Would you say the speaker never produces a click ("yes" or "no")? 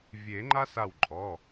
no